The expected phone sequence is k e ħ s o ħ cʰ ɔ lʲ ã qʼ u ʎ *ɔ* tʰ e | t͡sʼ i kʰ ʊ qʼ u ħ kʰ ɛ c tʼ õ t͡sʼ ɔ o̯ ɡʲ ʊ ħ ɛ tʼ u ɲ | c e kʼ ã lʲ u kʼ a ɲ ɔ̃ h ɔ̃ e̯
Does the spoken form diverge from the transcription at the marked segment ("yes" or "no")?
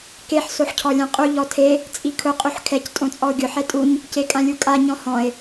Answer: no